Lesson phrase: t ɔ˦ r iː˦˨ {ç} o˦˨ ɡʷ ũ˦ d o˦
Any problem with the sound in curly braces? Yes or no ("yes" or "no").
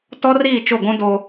yes